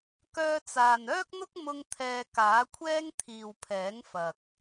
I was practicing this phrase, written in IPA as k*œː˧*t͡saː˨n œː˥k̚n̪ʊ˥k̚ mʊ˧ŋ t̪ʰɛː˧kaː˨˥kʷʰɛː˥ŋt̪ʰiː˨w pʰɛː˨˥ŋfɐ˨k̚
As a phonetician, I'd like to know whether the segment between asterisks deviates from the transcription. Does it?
no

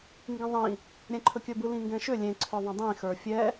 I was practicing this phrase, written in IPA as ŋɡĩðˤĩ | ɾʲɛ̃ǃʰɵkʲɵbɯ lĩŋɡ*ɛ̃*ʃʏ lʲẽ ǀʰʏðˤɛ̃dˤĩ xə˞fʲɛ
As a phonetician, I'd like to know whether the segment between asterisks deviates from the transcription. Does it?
no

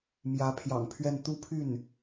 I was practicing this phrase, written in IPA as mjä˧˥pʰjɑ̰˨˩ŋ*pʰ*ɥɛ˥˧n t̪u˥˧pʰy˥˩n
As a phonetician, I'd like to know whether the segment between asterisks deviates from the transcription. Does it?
no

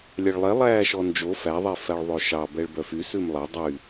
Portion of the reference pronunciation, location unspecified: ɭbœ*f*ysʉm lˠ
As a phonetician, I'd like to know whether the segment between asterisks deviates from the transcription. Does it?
no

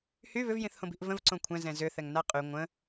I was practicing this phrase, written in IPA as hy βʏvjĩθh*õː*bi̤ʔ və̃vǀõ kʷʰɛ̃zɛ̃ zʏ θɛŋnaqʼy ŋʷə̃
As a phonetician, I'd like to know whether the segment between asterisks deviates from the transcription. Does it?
yes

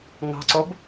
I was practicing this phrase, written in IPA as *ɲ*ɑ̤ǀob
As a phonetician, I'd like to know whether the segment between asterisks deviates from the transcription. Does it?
yes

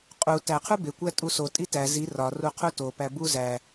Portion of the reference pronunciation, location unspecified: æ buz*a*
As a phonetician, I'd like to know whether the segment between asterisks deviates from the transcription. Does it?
yes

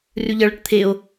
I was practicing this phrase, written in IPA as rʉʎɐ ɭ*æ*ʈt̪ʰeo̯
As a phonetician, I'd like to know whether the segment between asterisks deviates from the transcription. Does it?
yes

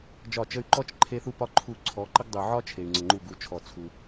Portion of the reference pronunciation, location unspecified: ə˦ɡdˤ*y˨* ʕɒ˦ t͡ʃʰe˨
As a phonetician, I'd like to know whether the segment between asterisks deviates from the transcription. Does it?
yes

